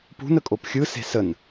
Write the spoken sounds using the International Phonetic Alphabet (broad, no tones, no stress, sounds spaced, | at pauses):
p ṳ n ə kʼ o p xʲ ɯ s e̤ s ə n